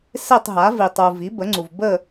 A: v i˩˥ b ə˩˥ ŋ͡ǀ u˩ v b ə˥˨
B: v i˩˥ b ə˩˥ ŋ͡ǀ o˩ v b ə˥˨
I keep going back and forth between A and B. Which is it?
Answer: A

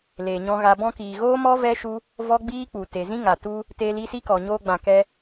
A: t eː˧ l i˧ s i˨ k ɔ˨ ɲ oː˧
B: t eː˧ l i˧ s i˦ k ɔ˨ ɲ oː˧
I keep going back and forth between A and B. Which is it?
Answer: B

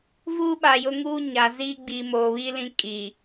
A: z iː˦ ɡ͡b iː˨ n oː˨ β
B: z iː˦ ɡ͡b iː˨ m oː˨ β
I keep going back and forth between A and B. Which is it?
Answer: B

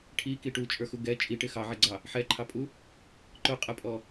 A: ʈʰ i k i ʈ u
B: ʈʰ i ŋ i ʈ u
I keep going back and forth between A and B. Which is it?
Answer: A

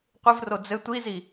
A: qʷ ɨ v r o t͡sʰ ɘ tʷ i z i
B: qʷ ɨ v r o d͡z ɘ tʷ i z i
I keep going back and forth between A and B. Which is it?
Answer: B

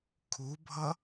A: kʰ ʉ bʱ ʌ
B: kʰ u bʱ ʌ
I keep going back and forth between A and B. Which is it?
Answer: B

